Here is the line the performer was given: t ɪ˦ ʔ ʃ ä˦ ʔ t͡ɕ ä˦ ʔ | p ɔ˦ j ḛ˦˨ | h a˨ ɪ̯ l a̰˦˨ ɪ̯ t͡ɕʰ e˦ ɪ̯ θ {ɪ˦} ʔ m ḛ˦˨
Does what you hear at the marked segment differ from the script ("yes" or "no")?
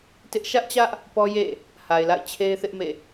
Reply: no